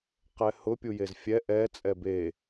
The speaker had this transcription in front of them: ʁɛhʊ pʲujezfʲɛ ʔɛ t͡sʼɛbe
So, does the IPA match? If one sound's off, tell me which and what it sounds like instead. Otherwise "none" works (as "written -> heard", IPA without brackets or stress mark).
ʁ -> q